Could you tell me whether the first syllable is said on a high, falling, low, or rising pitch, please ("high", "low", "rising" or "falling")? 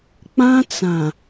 high